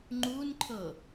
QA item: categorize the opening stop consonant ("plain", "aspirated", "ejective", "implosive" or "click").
click